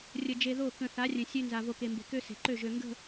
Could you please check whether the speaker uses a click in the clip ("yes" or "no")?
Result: yes